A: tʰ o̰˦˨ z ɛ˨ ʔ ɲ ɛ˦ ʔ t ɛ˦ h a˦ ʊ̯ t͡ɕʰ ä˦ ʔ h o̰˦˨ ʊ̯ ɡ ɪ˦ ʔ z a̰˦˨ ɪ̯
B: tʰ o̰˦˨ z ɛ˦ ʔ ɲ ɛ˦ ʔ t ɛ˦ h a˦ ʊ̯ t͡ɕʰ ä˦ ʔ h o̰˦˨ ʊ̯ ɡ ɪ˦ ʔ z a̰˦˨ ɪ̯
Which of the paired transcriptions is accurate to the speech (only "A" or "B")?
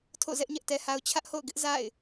B